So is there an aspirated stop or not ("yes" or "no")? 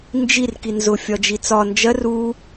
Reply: no